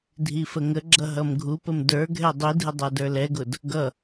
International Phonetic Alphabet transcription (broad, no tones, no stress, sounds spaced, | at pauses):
dʱ i f ə ŋ ə ɡ͡ǁ ʌ ɦ ʌ m ɡʱ u p ə m d ə˞ ɡʱ ɛ dˤ i dʱ ɪ dˤ æ d ə˞ l ɛ ɡ ʊ d | ɡ ʌ